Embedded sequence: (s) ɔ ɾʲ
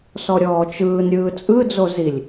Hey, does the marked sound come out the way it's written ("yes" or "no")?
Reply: yes